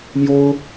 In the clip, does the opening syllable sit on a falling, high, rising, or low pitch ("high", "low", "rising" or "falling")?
high